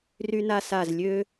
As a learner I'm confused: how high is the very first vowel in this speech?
high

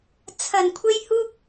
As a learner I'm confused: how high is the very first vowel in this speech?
low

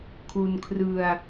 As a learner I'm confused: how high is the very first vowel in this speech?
high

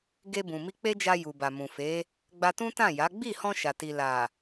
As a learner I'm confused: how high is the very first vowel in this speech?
mid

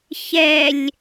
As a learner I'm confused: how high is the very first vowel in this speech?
mid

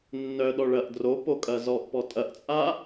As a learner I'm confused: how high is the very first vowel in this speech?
mid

